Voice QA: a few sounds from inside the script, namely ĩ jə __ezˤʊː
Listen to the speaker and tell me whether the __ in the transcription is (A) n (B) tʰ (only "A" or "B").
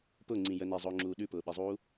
A